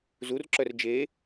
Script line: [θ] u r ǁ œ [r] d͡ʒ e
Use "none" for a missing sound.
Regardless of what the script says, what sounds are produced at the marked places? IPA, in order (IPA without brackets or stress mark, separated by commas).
z, r